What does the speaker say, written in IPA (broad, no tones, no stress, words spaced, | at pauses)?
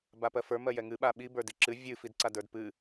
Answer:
bapɜfə˞ mɜjɛŋɨ ɓaɓi bə˞diǁɨ vʲɨ fidǀadə˞dpɨ